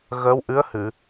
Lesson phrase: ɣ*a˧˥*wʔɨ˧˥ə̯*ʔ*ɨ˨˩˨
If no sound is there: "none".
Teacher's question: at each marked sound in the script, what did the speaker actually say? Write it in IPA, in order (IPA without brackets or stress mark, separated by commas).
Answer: ə˧˥, h